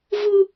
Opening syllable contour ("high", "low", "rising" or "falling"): high